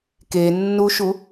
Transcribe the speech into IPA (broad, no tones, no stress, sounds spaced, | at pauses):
k e nː u ʃ u